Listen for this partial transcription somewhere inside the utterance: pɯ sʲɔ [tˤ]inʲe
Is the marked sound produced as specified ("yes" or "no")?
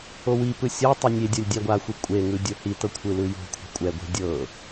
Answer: yes